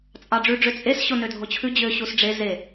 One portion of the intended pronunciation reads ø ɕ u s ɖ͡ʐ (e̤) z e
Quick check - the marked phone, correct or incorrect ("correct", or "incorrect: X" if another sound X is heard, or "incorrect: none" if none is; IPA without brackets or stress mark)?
incorrect: e